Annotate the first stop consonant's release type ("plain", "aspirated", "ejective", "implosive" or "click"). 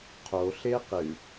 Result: aspirated